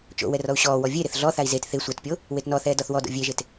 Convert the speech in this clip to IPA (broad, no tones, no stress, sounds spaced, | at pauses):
t͡ʃ o̰ w ɛ r ɔ u̯ ɕ ɔː w ɔ vʲ e ɾ ɪ θ ɮ ɔ θ a i̯ z e t θ ɪ sʷ a t pʲ o | w e t n ɔ θ ɛː d ɔ θ w ɔ d o̰ vʲ e ʒ e t